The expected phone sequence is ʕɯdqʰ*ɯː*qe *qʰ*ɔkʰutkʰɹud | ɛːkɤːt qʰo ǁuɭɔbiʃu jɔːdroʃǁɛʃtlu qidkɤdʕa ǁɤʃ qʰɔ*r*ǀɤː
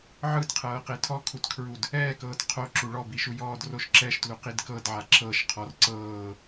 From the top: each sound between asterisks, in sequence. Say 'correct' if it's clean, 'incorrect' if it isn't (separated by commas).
incorrect, incorrect, correct